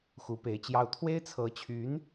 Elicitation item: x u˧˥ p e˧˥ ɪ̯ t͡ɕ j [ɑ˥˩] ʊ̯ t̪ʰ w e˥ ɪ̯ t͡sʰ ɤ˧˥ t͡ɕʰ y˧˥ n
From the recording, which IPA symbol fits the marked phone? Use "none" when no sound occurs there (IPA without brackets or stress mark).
ɑ˥˩